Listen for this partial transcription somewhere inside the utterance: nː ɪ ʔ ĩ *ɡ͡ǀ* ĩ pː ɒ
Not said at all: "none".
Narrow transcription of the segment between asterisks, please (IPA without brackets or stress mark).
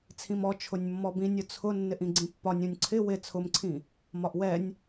ɡ͡ǀ